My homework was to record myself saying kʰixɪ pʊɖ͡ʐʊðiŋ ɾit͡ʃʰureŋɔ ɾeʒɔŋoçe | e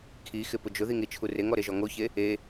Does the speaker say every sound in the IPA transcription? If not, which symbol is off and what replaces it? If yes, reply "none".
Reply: ɖ͡ʐ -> d͡ʒ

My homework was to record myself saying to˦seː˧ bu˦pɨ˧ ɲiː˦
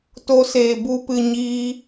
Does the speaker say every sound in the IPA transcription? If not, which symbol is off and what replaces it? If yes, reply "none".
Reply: none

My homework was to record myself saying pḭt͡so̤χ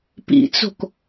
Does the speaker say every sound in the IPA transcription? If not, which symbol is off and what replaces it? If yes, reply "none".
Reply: χ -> k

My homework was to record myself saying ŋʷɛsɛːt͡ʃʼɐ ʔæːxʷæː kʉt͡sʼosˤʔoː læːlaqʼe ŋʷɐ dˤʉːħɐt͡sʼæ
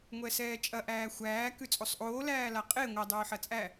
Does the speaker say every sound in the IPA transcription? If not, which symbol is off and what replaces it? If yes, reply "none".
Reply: none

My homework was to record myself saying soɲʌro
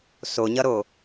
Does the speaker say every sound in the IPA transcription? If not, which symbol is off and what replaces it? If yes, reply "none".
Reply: r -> ɾ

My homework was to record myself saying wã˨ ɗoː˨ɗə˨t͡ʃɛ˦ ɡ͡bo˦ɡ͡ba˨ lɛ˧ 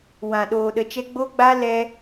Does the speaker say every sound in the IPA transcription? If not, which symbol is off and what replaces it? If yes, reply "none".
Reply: a˨ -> a˦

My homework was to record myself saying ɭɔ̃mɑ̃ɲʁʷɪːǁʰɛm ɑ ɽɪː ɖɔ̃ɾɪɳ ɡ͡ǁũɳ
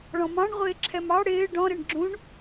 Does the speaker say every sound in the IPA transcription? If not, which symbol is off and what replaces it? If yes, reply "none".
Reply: ɲ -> ɳ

